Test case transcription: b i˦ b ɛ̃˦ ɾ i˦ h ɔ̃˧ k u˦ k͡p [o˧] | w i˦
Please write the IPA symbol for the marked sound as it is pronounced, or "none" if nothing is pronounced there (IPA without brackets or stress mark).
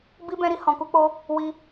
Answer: o˦